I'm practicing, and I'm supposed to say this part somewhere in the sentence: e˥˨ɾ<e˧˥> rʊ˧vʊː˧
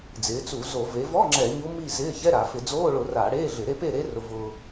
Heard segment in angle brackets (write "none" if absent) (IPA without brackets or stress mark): e˧˥